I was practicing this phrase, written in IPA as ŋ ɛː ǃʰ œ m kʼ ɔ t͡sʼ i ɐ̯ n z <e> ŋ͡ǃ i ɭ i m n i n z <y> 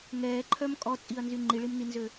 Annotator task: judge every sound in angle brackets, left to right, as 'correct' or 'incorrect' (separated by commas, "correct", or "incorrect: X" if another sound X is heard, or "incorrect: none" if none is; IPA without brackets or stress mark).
incorrect: y, incorrect: ø